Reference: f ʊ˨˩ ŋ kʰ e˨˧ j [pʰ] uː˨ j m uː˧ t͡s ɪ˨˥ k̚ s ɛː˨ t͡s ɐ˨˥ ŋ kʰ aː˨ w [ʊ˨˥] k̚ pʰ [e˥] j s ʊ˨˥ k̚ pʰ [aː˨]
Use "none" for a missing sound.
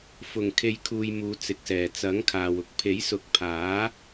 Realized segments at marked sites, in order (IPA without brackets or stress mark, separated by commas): kʰ, ʊ˧, e˨˥, aː˨˥